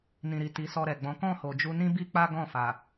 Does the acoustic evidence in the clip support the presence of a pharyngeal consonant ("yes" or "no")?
no